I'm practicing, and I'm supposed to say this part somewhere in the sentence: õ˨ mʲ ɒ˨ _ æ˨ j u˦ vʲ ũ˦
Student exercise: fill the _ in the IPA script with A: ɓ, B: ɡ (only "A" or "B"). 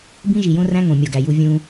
B